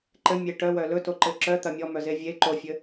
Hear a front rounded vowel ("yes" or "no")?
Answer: yes